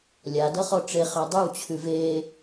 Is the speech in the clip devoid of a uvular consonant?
no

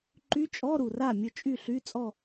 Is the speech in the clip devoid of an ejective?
no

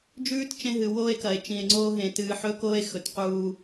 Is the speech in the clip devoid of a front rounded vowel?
yes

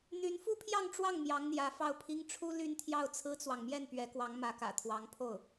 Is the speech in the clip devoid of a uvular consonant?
yes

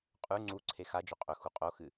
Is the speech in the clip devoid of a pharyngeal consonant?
yes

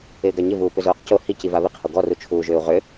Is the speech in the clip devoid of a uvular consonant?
no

